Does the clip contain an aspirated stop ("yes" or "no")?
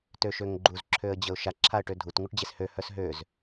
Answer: yes